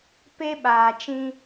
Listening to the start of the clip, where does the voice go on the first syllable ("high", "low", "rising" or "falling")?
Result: high